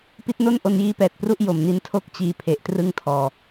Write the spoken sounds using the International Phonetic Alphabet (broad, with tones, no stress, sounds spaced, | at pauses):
p i˦˥ t̚ n o˥˩ n ʔ o˧ n j iː˦˥ p ɛː˨˩ t̚ p r u˦˥ ʔ j o˨˩ m n i˧ n tʰ o˥˩ k̚ t͡ɕ iː˧ pʰ e˨˩ ʔ t r ɯ˥˩ ŋ tʰ ɔː˧